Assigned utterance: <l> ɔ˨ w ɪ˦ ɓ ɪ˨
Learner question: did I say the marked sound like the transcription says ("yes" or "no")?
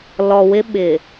yes